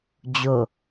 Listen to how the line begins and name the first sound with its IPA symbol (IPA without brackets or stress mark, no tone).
d͡ʑ